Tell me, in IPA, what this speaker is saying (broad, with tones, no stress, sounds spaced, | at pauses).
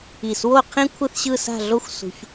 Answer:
i˧˩ s w o˥˧ qʰ ĩ˥ kʷʰ ɯ˥˧ θ ɕ ɯ˥˧ s a̤˥˧ ɮ o˥ xʷ s ṳ˧ ç